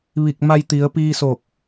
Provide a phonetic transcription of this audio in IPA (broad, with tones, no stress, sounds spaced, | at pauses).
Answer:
ʋ i˧˩ k̚ m a˧ j t̪ i˩˧ ə̯ p iː˧ s o˧˩ k̚